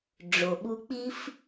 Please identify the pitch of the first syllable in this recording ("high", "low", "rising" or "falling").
low